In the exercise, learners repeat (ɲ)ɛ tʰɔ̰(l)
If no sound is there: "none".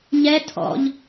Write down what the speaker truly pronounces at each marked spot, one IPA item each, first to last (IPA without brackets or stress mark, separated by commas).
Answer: ɲ, ʎ